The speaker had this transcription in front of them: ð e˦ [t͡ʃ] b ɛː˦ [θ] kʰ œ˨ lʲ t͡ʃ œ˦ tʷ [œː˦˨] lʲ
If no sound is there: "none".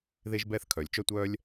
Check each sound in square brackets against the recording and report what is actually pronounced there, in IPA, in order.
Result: ʒ, θ, œː˦

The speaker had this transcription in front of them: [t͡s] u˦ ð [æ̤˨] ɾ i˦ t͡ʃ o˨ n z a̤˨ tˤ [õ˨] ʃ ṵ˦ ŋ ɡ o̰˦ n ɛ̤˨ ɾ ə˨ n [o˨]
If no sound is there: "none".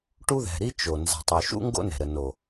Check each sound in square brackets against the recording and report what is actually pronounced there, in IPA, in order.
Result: ʈ, ɛ̤˨, o˨, o˨

